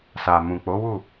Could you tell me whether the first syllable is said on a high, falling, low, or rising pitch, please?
low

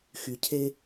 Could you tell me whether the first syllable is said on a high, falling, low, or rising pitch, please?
low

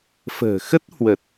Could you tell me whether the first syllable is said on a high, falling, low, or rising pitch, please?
low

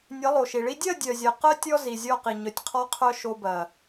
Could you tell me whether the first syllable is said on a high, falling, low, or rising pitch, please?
rising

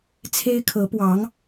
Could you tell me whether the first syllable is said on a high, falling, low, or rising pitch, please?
high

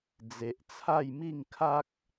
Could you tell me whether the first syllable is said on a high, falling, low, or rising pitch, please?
low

